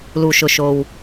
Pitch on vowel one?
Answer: low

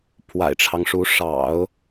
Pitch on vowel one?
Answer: low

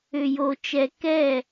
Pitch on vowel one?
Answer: low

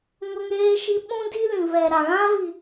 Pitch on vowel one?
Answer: high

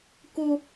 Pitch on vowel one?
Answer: high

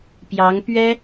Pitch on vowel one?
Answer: rising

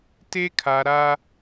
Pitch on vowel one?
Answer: high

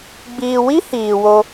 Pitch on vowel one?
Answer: low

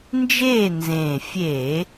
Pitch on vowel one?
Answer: falling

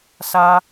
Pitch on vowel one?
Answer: high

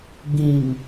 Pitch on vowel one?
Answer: low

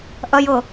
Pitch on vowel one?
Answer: high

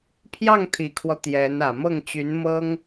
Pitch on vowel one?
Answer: falling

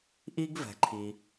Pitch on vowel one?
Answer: high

